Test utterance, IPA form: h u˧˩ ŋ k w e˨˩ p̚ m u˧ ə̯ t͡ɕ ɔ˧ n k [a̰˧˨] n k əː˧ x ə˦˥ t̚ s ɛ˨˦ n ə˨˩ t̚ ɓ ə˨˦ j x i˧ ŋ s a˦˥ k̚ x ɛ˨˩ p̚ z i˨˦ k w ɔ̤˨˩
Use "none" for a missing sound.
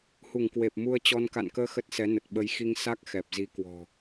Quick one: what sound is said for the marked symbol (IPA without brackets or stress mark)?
a̰˧˨